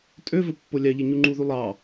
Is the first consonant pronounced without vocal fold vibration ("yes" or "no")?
yes